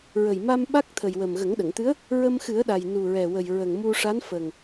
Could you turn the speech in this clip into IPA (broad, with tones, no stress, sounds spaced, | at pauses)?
ɹ ə˨˩ j m a˧ m ɓ a˦˥ k̚ t̪ʰ ə˨˩ j w ə˨˩ m ɣ ə˨˩˦ ŋ ɗ ə˨˩˨ ŋ t̪ ɨ˧˥ ə̯ | ɹ ə˧ m x ɨ˨˩˦ ə̯ ɗ a˨˩ j n u˨˩ ɹ ɛ˨˩ w ə˨˩ j ɹ ə˨˩ ŋ m u˧ ʂ a˧˥ n f ə˨˩ ŋ